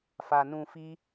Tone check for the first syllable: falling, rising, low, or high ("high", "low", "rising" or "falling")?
low